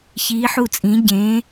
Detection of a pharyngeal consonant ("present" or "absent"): present